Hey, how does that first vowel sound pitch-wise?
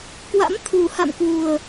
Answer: rising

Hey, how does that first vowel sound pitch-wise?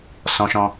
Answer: high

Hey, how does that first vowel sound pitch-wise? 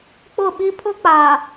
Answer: falling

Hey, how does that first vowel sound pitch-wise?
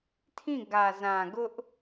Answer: falling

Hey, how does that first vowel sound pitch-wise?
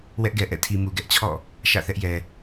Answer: high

